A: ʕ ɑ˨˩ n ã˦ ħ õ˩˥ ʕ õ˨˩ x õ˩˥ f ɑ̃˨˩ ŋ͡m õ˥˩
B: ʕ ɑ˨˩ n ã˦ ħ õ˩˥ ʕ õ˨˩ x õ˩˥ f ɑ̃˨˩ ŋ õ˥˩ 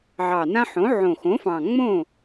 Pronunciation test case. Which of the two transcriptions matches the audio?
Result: A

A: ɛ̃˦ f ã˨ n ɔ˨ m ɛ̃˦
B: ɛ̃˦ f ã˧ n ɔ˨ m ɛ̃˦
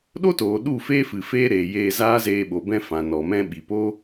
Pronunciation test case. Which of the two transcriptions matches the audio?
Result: A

